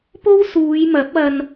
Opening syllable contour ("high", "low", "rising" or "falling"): high